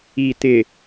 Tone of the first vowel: low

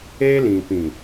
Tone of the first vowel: high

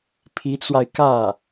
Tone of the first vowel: rising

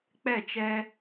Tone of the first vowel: falling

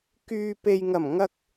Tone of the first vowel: low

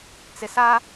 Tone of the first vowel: low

